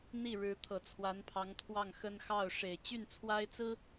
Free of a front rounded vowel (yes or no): no